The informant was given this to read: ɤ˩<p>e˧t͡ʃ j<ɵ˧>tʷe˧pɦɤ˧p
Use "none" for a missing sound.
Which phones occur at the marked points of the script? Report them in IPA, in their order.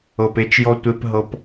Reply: p, ɔ˧

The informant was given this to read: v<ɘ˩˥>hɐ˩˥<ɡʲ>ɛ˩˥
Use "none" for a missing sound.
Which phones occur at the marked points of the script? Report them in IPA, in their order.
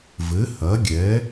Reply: ɘ˩˥, ɡʲ

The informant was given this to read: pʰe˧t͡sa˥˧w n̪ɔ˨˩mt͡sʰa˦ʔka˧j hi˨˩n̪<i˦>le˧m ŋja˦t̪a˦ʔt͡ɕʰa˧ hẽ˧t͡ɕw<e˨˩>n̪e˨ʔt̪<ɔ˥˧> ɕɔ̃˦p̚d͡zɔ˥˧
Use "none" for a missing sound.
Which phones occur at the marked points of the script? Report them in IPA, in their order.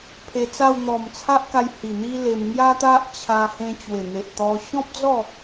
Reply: i˦, e˨˩, ɔ˧

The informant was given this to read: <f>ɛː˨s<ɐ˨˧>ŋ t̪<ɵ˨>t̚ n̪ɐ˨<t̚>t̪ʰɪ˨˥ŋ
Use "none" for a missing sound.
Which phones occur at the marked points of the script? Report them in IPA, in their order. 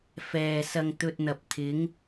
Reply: f, ɐ˧, ɵ˧, p̚

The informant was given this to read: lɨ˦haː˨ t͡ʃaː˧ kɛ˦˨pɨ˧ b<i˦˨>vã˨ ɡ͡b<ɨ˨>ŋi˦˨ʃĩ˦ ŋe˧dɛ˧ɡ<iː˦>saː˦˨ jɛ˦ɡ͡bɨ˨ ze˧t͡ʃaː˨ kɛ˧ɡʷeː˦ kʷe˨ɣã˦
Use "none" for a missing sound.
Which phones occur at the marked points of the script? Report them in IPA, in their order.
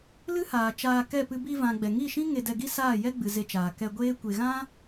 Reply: i˧, ɛ˨, i˦

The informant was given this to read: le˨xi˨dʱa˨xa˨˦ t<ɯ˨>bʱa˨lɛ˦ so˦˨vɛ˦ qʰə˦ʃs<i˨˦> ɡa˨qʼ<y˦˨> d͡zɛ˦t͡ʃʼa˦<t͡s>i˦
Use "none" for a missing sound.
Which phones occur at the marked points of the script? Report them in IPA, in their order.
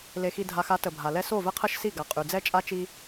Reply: ə˨, i˦˨, y˨, t͡ʃ

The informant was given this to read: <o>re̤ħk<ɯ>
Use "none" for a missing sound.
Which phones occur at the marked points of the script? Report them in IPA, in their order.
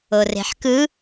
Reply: o, ɯ

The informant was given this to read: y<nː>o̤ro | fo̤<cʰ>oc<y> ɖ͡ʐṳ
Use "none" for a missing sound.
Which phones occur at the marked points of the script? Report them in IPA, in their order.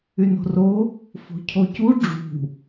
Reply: n, cʰ, u

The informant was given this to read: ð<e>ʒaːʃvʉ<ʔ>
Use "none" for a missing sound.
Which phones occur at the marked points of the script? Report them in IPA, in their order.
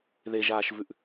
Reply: e, ʔ

